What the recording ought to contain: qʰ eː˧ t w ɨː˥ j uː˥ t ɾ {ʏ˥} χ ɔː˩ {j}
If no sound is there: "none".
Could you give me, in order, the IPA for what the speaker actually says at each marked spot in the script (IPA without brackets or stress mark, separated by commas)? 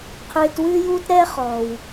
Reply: ɛ˥, w